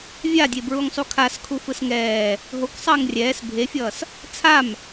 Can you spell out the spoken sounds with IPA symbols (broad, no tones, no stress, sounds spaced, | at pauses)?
vʲ a dʲ e b ɹ u ŋ sˤ u kʰ a s kʰ u f ɯ s ŋ ɛː | ɦ o k sˤ ʌː ŋ rʲ ɛː s bʱ e fʲ ʌː s | t͡sʰ a m